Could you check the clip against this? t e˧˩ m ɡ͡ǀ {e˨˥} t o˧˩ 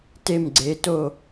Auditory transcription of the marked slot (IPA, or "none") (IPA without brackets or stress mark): e˩˧